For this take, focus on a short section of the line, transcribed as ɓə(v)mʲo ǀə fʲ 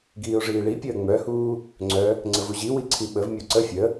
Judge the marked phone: correct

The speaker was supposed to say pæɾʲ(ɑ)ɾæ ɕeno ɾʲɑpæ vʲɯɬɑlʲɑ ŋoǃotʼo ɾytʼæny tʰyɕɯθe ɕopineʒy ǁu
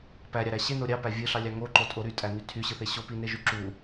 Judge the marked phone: correct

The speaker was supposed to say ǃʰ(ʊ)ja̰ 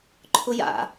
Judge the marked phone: correct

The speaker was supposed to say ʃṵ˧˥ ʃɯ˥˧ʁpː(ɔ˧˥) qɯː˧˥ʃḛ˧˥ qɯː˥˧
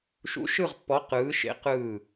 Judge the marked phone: correct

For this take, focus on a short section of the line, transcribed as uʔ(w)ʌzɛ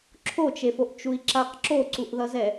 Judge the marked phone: incorrect: ð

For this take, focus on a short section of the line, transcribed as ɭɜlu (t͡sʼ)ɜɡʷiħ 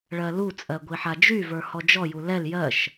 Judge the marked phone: correct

